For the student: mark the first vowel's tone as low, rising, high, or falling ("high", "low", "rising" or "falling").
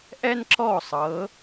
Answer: high